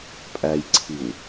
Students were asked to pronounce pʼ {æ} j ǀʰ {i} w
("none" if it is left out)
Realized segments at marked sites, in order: æ, i

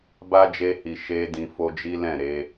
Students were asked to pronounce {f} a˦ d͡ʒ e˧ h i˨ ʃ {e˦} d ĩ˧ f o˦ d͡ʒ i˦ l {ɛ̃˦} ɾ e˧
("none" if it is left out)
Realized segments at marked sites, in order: b, e˧, ɛ̃˦˨

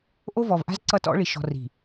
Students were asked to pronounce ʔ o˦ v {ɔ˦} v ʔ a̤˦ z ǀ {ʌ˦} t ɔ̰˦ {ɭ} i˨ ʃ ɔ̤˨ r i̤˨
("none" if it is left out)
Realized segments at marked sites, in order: ɔ˨, ʌ˦, ɭ

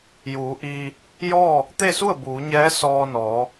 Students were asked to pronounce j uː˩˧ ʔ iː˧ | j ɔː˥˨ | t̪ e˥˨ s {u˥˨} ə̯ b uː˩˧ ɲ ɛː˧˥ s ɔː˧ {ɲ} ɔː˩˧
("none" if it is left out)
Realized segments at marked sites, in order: u˥˨, n

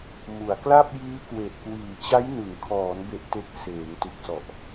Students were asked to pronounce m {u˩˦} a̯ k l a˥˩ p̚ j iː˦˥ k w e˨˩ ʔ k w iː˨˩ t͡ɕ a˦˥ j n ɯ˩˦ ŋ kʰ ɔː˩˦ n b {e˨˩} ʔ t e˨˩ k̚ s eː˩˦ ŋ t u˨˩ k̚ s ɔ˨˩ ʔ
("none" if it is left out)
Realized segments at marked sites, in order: u˩˦, e˨˩

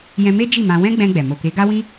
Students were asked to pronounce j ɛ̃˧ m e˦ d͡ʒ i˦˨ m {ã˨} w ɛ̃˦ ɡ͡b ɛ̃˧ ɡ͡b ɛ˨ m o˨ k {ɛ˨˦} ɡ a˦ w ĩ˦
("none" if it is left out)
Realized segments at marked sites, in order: ã˧, e˨˦

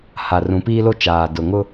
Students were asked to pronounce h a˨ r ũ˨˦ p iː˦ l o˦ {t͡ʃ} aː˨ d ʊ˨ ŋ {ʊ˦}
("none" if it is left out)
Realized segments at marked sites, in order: t͡ʃ, ʊ˦

